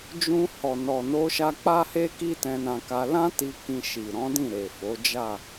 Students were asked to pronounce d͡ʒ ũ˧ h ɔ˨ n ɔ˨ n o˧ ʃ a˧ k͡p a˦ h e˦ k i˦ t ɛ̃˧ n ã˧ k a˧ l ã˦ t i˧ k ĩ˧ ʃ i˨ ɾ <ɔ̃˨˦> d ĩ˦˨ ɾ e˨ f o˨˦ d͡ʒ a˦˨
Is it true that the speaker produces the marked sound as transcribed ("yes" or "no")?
yes